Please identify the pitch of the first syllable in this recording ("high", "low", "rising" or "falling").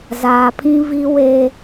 low